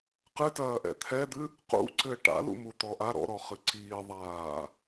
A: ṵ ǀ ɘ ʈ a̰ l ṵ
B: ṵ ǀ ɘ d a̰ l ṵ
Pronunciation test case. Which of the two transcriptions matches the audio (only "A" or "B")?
A